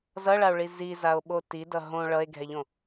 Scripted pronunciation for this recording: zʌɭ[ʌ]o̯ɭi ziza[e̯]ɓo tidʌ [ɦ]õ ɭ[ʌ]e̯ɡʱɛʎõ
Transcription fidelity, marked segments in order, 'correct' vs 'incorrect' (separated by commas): incorrect, incorrect, correct, correct